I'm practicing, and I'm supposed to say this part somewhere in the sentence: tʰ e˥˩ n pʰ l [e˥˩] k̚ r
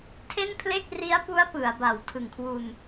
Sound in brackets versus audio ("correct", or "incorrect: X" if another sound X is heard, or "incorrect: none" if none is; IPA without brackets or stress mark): correct